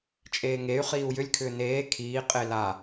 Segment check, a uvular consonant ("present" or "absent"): present